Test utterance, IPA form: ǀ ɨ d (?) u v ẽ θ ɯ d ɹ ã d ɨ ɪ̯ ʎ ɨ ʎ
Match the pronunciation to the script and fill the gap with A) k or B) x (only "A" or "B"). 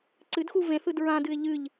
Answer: B